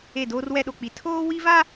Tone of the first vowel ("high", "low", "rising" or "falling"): falling